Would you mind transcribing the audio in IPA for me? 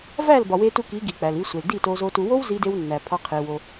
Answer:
væ˦˨l bɒ˨we˧tu˧ki˨˦ ɡi˨ k͡pæ˨li˧sʷe˨l di˦˨to˧zo˧ tu˨wo˦w zi˦de˦wnːæ˨ pʰɒ˧ qʰe˧ wo˧

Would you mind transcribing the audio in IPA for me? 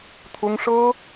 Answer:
t̪ʰʊ˥ŋʂɤ˥

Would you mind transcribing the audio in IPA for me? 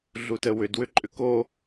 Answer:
ɮutəwʏd wʏǃʼʏko

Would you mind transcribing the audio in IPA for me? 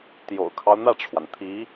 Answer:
t̪jo̰˨˩ʊ̯kʰɑ˦ʊ̯ n̪ä˥˩ʈ͡ʂʰwa˩nt̪ʰi˧˥

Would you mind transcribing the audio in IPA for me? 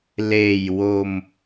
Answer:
leː˨˩jwo˧m

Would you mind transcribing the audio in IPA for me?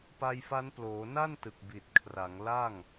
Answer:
pa˧jfa˦˥nploː˩˦ na˥˩n tɯ˨˩k̚bi˨˩t̚ kʰra˩˦ŋ la˥˩ŋ

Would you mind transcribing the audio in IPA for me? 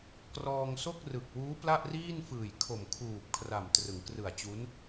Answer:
krɔː˧ŋso˥˩k̚rɯ˨˩k̚wuː˦˥ pla˥˩ʔriː˥˩nfɯː˨˩j kʰo˨˩mkʰuː˨˩p̚ kʰra˨˩mtrɯ˩˦ŋ krɯ˨˩a̯t͡ɕu˦˥n

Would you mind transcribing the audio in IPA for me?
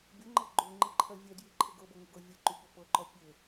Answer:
bʲɤŋ͡ǃɤ ɡ͡ǃoŋ͡ǃiǃʰɜ vʲɛdjiǃʰɘ ɡɤbɤŋɘɡɤ vʲɛǃyɠo pɤǃɔ pʲɘ

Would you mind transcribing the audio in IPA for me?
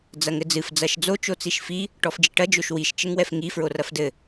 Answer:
d͡zɐŋɘd͡zɨf d͡zɐʃd͡zo t͡ʃot͡siʃfi | ʈɔfd͡ʒiʈɐ d͡ʒoʃwiʃ t͡ʃɘŋwɛfŋi fɹorɐfdɘ

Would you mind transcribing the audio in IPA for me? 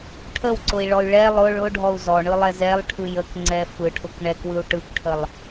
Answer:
ʈʰəwǀʊi̯ɭɔy̯ ɭɛ lˠʊ ɭʊɖʱɔu̯ zɔɳɯlˠɛz ɛlˠʈʰɯj əkŋ͡ǀɛ fɯʈʰʊk ɳɛkwɯu̯ ʈɯkʈʰəlˠ

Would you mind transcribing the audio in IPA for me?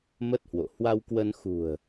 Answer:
mə˦˥t̚hwo̰˧˨ hwa˧wkwə˧n xṳ˨˩ə̯

